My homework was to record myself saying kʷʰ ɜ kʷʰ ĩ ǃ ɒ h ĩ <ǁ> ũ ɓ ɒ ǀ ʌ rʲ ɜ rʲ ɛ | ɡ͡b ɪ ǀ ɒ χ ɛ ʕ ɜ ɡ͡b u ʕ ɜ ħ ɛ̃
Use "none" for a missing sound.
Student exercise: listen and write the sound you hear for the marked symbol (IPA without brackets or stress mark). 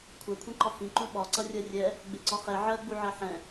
ǃ